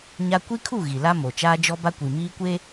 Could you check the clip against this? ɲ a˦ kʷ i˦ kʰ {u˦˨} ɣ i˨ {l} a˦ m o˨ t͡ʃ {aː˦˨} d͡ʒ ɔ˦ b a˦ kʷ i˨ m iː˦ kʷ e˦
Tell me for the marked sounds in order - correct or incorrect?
correct, correct, incorrect: aː˦

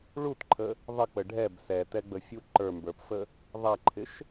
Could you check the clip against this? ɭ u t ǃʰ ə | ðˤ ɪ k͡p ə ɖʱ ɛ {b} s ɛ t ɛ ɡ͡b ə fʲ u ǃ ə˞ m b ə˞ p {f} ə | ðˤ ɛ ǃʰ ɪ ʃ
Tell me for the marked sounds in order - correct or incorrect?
correct, correct

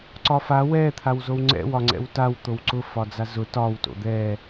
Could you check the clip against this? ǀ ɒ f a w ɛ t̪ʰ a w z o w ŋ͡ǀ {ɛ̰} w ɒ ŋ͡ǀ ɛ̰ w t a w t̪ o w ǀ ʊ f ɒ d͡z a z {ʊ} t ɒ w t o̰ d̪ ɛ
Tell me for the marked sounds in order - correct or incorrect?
correct, correct

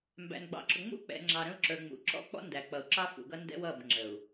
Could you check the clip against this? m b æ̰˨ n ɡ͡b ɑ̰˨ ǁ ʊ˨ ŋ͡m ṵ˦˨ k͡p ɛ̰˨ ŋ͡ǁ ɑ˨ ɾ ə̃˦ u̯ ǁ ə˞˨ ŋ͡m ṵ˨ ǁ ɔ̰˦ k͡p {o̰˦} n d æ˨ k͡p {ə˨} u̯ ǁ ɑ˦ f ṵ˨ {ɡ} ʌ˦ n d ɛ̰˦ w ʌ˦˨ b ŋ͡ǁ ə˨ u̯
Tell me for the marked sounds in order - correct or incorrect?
incorrect: ɔ̰˦, incorrect: ʌ˨, correct

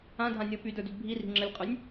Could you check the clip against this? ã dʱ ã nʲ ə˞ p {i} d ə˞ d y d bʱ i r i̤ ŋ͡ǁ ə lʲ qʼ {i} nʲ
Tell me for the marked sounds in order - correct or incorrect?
incorrect: y, incorrect: y

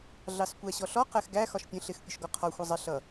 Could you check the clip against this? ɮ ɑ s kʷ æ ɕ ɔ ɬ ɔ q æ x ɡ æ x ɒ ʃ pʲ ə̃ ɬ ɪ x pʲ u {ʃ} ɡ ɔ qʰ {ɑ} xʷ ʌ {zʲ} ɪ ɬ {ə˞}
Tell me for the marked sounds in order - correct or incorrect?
correct, incorrect: ɒ, incorrect: zˤ, incorrect: ʌ

